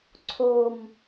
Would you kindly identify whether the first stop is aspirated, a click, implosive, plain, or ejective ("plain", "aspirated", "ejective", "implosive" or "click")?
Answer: click